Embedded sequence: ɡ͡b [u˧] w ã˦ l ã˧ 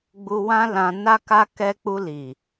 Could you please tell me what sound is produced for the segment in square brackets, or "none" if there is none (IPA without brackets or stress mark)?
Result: u˧